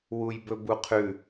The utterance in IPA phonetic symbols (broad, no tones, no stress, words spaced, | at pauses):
wujbɵbuqʰʉ